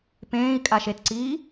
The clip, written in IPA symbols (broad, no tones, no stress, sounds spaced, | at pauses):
p ẽː i̯ kʼ a ʃ e t ǀ iː